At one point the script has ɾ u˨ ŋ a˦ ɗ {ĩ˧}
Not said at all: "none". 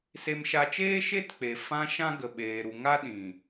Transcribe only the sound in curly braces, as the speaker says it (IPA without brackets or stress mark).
ĩ˨